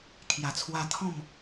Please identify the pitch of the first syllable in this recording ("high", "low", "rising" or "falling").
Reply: low